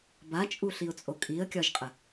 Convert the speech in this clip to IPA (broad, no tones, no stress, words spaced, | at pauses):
bat͡ʃʼuɬiʊ̯t͡sʼo kʼiə̯kʲɒʒqʼə